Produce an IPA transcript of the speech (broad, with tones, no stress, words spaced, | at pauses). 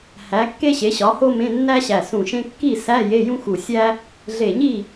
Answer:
hæ˨˥kːe˥ ɕe˨˥ɕɒ˨˥ho˥mẽ˧˥˧ nːæ˥ɕæ˧˩sũ˧˩ʃẽ˥ kːi˥˨sæ˧˥˧ je˧˥˧jũ˥xu˧˩sʲæ˥ | ɮe˧˩ɲi˥˨